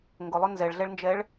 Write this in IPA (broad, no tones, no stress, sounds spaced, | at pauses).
ŋ ɡ ʊ lˠ ʊ n z ɛ ɭ ɮ ɛ ɭ n d͡ʒ ɛ ɭ